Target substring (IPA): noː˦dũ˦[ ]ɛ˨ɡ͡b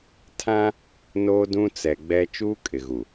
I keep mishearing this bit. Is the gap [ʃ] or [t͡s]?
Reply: t͡s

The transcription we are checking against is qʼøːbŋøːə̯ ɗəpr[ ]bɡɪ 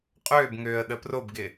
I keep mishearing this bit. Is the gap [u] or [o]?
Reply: o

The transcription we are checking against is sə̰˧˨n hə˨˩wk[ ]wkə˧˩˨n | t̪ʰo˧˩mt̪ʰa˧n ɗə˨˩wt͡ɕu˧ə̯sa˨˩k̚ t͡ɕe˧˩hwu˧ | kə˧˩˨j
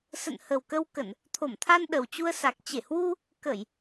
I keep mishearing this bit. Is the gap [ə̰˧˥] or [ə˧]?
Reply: ə˧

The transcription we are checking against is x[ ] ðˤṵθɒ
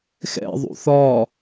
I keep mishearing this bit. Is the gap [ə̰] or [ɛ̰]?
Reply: ɛ̰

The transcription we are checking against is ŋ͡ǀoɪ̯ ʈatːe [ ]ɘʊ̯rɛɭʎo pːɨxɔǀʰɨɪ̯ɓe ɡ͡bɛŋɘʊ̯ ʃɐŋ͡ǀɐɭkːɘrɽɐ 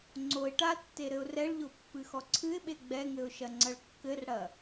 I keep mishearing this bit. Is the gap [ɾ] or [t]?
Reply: ɾ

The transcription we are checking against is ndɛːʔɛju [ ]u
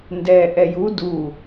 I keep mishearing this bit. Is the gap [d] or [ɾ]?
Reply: d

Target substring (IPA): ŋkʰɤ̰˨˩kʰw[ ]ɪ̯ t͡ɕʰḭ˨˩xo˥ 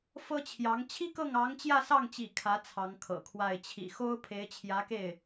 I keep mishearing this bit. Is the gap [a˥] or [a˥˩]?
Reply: a˥˩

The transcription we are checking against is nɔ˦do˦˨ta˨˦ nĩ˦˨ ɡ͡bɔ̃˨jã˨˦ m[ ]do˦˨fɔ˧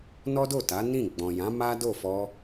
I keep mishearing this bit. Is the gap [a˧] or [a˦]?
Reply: a˦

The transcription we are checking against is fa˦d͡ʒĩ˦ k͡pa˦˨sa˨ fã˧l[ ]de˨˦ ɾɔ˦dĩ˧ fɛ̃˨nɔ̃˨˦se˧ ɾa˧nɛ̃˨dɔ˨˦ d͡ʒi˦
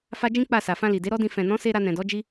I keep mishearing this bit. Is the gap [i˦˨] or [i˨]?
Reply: i˨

